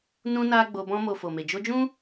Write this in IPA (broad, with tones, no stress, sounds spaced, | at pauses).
n ũ˦ n a˦ ɡ͡b o˧ b ɔ̃˧ m o˨ f o˨ m e˨ d͡ʒ o˧ d͡ʒ ũ˦